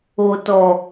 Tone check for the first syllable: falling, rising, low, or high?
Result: low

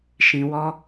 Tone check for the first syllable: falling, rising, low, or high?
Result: low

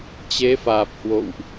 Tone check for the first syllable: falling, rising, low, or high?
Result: rising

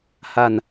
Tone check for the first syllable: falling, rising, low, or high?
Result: low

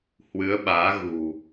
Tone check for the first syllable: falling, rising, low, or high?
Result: rising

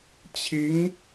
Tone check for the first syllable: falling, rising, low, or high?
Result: rising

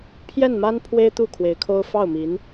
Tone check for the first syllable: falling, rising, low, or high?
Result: falling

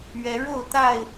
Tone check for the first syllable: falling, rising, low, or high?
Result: rising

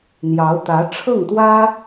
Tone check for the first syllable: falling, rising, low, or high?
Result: rising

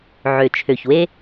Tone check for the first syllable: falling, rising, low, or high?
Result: low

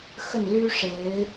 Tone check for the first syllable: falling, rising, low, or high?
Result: falling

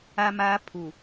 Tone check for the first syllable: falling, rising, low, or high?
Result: high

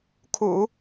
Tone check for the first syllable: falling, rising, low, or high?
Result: low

